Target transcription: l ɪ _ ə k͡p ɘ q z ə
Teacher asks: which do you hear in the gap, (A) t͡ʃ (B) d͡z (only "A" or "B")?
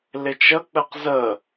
A